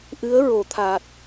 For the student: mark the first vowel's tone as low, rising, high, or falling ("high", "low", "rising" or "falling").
rising